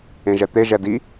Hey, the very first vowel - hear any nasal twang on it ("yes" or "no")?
yes